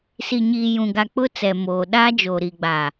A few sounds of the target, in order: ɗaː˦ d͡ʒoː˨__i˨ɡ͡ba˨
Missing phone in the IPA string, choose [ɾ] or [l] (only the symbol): ɾ